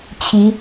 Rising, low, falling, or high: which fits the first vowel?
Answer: rising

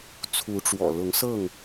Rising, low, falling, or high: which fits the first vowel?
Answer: rising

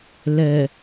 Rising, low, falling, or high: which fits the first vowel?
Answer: low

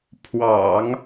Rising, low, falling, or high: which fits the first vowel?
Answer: low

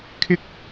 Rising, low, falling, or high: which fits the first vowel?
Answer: high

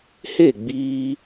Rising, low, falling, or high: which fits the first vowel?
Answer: falling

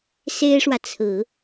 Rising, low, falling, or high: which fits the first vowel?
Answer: high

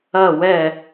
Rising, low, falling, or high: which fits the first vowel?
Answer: falling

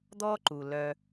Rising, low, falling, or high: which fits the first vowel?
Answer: high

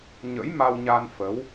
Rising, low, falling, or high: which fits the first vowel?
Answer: rising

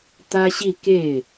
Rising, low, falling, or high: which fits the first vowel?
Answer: high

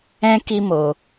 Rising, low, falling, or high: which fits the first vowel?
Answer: high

